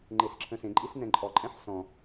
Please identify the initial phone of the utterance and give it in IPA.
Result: ŋ͡ǃ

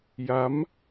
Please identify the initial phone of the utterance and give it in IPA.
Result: j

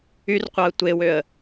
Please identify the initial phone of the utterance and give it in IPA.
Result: y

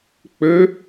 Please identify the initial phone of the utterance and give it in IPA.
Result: k͡p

